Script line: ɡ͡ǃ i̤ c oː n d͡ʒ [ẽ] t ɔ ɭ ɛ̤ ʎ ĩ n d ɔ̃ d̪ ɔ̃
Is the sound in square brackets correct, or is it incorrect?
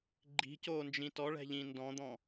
incorrect